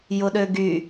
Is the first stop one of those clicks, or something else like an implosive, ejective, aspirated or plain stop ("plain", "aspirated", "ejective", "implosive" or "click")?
implosive